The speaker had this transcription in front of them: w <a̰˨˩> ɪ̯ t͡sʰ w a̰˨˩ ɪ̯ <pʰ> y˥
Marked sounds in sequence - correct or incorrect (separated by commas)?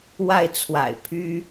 incorrect, correct